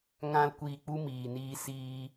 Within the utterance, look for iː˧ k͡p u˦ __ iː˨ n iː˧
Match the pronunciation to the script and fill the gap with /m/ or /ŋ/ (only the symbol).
m